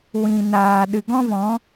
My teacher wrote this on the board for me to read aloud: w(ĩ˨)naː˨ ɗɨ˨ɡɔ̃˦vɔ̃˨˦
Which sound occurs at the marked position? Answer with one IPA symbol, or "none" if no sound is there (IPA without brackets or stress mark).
ĩ˨